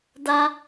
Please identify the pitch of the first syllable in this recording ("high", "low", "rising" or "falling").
high